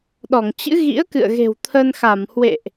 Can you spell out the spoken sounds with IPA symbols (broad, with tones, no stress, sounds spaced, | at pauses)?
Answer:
ɗ ɔ˧˩ ŋ t͡ɕ ɨ̰˧˥ ɣ ḭ˧˥ ə̯ k ɨ̰˧˨ ə̯ ɣ e̤˨˩ w t̪ʰ ə˧ n x a˧˩ m h w ḛ˧˨ ʔ